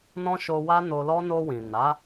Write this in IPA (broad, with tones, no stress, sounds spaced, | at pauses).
n ɔ̃˦ ʃ o˧ w a˦ n o˧ l ɔ˦ n o˧ w ĩ˨ n a˨˦